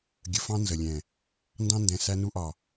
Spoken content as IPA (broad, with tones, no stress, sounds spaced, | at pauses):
ɡʲ ə˨ f ɑ̃˦ n z ə˨ lʲ ɛ̃˨ | n d ɑ̃˦ n d ɛ̃˨ s æ˦ n u˦ ʔ ɒ˨